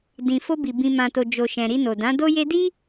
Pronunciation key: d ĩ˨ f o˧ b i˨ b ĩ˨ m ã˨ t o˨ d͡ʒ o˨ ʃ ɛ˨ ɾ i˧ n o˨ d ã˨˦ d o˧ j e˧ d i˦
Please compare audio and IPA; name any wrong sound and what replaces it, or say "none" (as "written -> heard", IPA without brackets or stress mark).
ɛ˨ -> ɛ̃˨